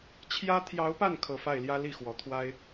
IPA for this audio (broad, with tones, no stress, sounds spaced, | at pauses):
t͡ɕʰ j ä˥ t̪ʰ j ɑ˧˥ ʊ̯ p a˥˩ n kʰ ɤ˧˥ f a˥˩ ɪ̯ l j ä˥ l i˥˩ x w ɔ˨˩ t̪ʰ w a˥ ɪ̯